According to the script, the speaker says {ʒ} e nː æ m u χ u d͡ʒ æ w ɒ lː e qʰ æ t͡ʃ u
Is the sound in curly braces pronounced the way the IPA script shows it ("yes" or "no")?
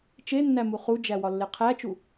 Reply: no